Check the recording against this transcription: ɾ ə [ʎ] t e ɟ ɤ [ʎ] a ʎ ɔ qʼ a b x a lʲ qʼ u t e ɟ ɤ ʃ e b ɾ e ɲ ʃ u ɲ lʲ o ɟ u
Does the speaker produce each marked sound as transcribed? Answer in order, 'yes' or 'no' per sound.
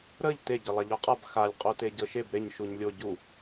yes, no

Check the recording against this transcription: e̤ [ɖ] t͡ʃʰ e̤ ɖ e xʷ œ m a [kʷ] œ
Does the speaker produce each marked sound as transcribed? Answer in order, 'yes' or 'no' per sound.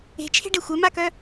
no, no

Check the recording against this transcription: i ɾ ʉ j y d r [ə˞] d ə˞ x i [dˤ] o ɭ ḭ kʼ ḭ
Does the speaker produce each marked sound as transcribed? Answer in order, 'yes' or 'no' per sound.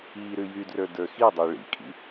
yes, yes

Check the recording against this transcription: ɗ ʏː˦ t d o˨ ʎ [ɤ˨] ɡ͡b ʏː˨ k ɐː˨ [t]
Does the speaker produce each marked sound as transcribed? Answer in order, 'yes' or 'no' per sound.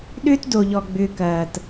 no, yes

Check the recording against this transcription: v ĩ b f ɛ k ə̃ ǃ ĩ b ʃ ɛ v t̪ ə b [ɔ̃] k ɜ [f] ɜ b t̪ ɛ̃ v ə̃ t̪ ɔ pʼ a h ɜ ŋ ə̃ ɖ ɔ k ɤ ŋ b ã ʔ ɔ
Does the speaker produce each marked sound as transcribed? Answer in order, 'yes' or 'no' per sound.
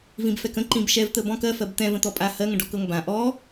yes, yes

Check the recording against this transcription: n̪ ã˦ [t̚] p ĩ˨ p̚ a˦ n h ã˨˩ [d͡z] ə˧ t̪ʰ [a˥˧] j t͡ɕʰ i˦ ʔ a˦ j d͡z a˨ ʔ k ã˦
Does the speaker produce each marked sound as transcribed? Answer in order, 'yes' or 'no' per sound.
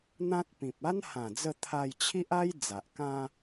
yes, yes, no

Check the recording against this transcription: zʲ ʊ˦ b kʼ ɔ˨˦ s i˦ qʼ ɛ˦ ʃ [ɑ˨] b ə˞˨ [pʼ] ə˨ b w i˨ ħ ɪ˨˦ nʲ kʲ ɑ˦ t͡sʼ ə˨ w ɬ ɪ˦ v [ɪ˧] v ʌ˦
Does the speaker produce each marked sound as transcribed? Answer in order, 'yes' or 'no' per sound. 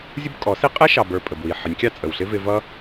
yes, yes, yes

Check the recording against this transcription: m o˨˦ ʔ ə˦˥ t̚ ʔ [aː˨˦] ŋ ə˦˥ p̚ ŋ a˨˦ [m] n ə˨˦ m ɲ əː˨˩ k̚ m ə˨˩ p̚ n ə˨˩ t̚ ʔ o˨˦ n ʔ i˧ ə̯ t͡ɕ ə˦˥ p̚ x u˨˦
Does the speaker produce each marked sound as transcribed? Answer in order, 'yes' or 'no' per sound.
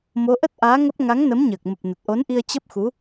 yes, no

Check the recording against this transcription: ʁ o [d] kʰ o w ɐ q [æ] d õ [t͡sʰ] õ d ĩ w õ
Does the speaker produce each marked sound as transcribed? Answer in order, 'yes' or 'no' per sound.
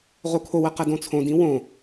no, no, yes

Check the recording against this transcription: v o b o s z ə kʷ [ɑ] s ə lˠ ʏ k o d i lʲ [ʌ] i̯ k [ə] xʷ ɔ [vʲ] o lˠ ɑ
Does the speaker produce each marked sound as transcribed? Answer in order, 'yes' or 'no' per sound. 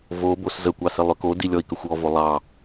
yes, no, yes, no

